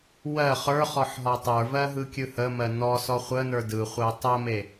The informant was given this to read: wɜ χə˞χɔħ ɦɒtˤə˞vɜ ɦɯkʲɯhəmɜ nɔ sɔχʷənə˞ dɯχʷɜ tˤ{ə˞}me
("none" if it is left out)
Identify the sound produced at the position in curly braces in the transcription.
ɜ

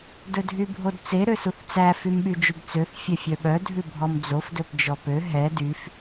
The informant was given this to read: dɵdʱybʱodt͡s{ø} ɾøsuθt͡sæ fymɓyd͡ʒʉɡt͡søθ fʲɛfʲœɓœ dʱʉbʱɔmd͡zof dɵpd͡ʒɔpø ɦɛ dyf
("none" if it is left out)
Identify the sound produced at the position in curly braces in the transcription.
e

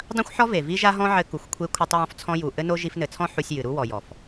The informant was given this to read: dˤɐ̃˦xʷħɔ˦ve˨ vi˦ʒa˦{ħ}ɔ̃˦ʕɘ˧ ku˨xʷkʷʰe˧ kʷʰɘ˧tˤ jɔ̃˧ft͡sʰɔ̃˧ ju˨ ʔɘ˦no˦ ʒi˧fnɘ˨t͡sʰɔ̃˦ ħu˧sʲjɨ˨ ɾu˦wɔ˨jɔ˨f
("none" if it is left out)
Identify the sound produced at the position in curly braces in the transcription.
ɦ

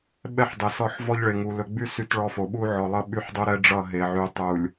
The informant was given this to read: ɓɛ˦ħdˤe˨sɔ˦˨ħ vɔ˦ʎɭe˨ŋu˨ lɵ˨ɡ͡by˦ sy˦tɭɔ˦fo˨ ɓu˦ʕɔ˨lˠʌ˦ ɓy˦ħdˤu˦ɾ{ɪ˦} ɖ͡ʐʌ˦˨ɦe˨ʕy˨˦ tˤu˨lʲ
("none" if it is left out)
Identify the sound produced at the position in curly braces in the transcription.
ɛ˦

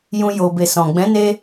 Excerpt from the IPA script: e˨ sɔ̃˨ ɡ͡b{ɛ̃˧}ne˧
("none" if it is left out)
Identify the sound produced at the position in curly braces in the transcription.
ɛ̃˨˦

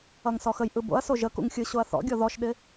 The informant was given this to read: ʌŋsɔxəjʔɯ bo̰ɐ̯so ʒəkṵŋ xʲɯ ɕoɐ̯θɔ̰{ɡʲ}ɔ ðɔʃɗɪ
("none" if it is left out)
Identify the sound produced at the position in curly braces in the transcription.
ɡʲ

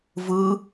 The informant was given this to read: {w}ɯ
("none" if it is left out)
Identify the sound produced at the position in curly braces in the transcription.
v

